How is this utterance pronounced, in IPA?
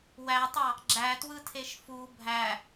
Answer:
w æ tˤ ɑ | ɡ͡ǁ æ t w ɯ tʰ e ʃ f u bʱ æ

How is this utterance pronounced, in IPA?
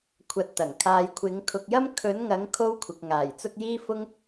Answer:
kʷʰ ɐ˧ t̚ t̪ ɐ˨˩ ŋ kʰ aː˧ j kʷʰ ɪ˨˥ ŋ kʰ ʊ˧ k̚ j ɐ˥ m kʰ ɵ˨˥ n ŋ ɐ˨˥ ŋ kʰ o˥ w kʷʰ ɪ˨ k̚ ŋ aː˨˩ j t͡s ʊ˥ k̚ j iː˥ f ʊ˥ ŋ

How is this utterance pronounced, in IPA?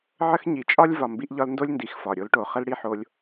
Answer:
ʕ ə˦ x ɲ i˨ t͡ʃʼ ɒ˦ lʲ v ɒ˨ m b i˧ ʔ ʎ ɒ˧ l n d o˦ lʲ n d i˨ x f ɒ˨ ɾʲ o˧ l ʈ o˨ χ ə˦ l ɽ i˦ ħ o˧ lʲ

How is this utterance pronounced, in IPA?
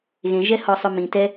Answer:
ɣ ẽ ʒ ɛ h ɔ sˤ ʊ m ĩ t ɛ

